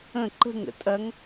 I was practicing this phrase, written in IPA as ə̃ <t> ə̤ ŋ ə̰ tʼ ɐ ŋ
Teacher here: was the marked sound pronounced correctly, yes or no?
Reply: no